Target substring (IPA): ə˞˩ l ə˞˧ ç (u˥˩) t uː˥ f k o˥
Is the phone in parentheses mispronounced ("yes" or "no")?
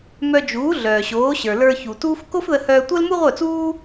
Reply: yes